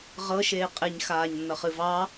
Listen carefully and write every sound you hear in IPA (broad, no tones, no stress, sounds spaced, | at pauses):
ʁ ɤ ʃ eː qʼ e ɲ x aː ɲ nː ʌ χ ɨ v ɑ